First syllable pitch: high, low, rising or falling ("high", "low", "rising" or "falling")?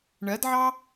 rising